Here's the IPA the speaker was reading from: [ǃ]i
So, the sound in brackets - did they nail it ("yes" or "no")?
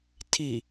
no